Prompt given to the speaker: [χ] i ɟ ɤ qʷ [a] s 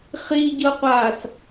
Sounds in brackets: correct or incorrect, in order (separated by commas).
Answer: correct, incorrect